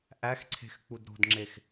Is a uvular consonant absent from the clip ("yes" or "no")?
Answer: yes